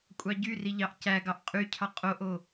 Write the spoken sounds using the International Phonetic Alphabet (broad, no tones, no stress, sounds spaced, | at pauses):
kʷʼ ɑ ɟ y r i ʎ ɑ ʔ c æ ɡ ɑ ʔ qʼ y cʰ ɑ qʼ o ʔ o